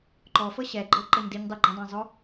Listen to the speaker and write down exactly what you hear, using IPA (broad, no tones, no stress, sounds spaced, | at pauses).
ǃ ɔ f ɤ ɕ ɛ ɡ͡ǃ ɤ ǃ ɤ ɲ d i ɲ dˤ e ɡ͡ǃ ĩ dˤ ɛ̃ zˤ o